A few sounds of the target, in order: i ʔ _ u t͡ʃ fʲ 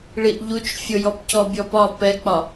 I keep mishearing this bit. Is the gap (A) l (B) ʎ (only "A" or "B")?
B